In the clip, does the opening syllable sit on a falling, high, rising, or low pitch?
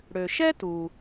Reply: low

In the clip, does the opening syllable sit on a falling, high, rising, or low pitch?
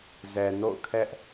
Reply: low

